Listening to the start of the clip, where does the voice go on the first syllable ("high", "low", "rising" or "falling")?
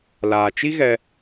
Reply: low